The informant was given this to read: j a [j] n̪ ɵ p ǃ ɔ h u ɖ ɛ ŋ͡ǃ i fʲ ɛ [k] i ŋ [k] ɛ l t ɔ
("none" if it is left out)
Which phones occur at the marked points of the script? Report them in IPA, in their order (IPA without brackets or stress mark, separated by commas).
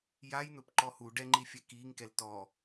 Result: j, k, k